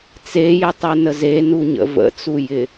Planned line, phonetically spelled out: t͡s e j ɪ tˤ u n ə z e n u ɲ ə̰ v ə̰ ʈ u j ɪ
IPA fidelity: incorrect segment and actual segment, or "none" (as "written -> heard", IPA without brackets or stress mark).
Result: ʈ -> t͡s